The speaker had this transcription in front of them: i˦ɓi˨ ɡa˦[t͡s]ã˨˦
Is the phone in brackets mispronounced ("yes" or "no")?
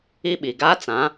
no